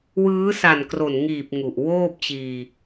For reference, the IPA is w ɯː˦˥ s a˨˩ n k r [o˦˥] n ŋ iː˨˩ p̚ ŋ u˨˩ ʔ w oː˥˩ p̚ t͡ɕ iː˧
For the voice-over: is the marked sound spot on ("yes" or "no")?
no